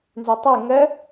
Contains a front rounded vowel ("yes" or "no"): yes